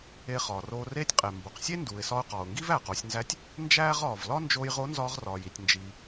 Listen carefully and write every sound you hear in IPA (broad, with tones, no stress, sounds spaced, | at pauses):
e˧ χ ɒː˩ r oː˧ r eː˥ tʲ qʼ e˩ m b o˩ q sʲ e˥ n d uː˩ ɪ̯ s ɒ˧ ʊ̯ q ɒː˩ ʊ̯ ŋ ɡ i˥ v æː˩ q o˩˧ sʲ n z æ˧˥ tʲ | n d͡ʒ æː˥ ʁ ɒː˩ v l ɒ˥ n d͡ʒ oː˧ j ʁ o˧˥ n z ɒː˧ ʁ r ɒː˩ j i˩ tʲ n d͡ʒ iː˩